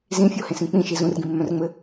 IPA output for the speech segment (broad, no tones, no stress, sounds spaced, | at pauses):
z ĩ fʲ o h ẽ s ĩ k͡p ĩ ʃ i z ũ r ɡ ĩ mː œ̃ r ŋ͡m ɘ